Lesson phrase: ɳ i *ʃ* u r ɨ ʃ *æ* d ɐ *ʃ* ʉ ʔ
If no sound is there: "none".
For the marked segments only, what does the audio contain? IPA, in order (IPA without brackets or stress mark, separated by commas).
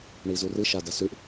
z, a, s